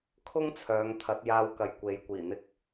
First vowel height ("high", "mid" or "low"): high